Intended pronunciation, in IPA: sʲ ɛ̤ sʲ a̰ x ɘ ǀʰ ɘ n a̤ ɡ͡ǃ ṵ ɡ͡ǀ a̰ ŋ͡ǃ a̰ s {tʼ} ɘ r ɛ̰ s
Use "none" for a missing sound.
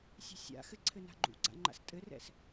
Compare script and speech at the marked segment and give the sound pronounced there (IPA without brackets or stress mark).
tʼ